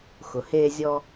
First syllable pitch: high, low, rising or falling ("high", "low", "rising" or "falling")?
low